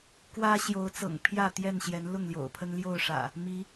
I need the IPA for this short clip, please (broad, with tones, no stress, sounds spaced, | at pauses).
k w ä˦ ɕ j o˨˦ ʊ̯ t͡s ɤ̰˨˩ ŋ pʰ j ä˥˨ t̪ j ɛ˥˨ n ɕ j ɛ˨˦ n l ʊ˥˨ ŋ l j o̰˨˩ ʊ̯ pʰ ə˦ n l j o˥˨ ʊ̯ ʂ ä̰˨˩ | m i˨˦